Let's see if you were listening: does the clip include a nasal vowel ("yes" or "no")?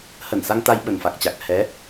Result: no